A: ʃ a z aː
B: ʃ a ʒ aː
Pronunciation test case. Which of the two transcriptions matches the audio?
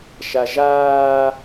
B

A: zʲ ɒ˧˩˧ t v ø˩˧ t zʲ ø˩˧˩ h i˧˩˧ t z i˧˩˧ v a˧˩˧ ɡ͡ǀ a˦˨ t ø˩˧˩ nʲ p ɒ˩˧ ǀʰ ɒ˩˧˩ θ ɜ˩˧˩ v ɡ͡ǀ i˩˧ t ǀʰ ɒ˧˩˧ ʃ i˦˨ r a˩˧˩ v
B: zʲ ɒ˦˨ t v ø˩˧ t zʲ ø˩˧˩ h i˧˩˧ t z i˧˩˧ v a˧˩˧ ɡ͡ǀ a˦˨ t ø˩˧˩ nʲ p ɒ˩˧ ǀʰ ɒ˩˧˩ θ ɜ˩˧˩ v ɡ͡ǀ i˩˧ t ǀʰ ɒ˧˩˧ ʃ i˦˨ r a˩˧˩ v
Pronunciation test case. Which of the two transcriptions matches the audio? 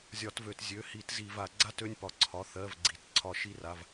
A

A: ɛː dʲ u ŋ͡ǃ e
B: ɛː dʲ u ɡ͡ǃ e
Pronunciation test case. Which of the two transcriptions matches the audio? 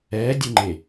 A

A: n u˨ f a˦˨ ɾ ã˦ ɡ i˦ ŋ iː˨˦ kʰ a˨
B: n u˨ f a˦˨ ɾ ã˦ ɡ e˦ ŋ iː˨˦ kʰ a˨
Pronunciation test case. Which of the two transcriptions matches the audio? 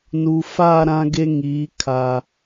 B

